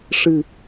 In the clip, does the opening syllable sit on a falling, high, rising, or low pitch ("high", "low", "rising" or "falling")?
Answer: low